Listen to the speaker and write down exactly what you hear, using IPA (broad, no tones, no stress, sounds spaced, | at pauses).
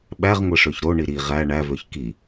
ɓ æ ʁ ŋʷ e ʂ ø ç ɾ o ɳ i ɾ i ʁ æ ɳ æ v ø ç k i